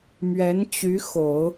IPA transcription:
m ɥ ɛ˧˥ n t͡ɕ y˧˥ x o˨˩˦ ʊ̯

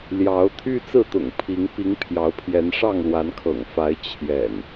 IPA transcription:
l j ɑ˨˦ ʊ̯ t̪ʰ y˦ t͡s ɹ̩˥˨ t̪ ʊ̰˨˩ ŋ pʰ i˨˦ ŋ p i˨˦ ŋ pʰ j ɑ˨˦ ʊ̯ pʰ j ɛ˨˦ n ʂ ɑ˥˨ ŋ l w a˨˦ n kʰ ɤ̰˨˩ ŋ f a˨˦ ɪ̯ t͡ɕʰ j ɛ̰˨˩ n

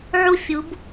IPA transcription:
ʕ u˦˨ fʲ u˨˦ b

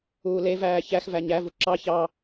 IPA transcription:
uː l e v æː ç æ x v æ ɲ æ v u ǁ ɑ ç ɑ

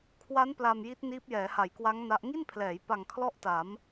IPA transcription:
kʰ w a˦˥ n p l a˧ m j i˦˥ t̚ n iː˦˥ p̚ j ɛː˩˦ h a˩˦ j k w a˦˥ ŋ n a˦˥ ʔ ŋ i˥˩ n pʰ l ɛː˩˦ j p a˨˩ ŋ kʰ l ɔ˥˩ ʔ t a˩˦ m

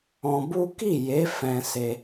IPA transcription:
ɔ̃˧ b u˦ k i˦˨ j e˨˦ f ɛ̃˧ s e˧

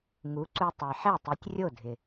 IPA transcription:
ŋ u˩˥ ǀ u˧ tˤ e˩ ħ ɛ˥˩ tˤ i˩˥ tʲ rʲ o˥˩ dʱ ɪ˩

